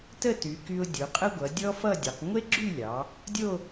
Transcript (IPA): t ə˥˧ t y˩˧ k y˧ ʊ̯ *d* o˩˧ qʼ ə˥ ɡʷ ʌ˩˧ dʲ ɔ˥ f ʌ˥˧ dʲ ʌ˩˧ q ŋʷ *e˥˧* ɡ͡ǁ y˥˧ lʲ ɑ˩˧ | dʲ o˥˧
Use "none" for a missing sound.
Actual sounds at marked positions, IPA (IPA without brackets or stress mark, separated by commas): dʲ, e˥